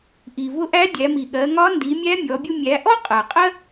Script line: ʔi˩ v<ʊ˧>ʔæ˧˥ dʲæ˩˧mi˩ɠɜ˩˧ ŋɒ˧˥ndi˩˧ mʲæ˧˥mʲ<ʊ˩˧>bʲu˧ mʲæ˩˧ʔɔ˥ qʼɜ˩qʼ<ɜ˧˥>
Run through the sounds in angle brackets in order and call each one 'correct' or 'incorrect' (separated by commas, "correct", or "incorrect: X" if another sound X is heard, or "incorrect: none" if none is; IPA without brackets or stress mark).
correct, incorrect: ɔ˩˧, incorrect: ɜ˥